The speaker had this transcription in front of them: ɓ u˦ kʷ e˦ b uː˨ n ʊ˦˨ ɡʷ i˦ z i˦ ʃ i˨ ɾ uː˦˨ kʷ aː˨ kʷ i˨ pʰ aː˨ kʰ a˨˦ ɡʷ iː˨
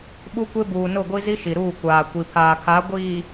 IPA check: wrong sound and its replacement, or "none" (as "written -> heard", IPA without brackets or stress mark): none